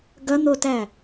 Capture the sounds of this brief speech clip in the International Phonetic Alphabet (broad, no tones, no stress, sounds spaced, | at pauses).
ɡ ɐ n̪ o t æ